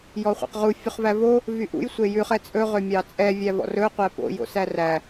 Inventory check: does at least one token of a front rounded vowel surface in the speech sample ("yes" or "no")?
yes